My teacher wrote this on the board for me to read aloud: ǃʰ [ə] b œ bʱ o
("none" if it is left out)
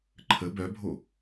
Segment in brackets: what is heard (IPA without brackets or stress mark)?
ə